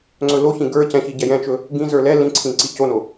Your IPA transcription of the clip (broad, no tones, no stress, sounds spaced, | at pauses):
ŋ͡ǀ ɵ l o ç ĩ ɡ ə˞ c ɛ̃ ç i ɟ ɛ j ɛ̃ t͡ʃ ɵ | ɡ ĩ z ə˞ l ɛ l ĩ ǀʰ ĩ ǀ i c o n o